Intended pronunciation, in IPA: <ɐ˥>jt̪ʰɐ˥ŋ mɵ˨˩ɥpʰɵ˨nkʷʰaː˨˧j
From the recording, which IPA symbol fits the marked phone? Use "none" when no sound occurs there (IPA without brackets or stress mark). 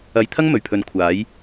ɐ˧